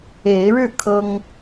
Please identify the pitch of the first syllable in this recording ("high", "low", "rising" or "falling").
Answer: rising